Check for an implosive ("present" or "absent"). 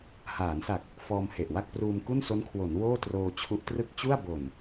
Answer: absent